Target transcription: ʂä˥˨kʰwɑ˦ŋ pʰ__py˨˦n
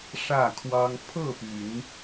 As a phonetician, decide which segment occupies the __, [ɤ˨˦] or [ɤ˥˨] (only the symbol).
ɤ˥˨